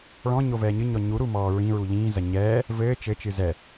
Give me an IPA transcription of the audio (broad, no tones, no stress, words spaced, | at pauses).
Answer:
ɭɔ̃ɲo vɛːɲɨɲɔ ɲuɾu mɔːɹĩɹu ʎĩːzɐ ɲɛː | vɘː t͡ʃɘt͡ʃɨ zɛ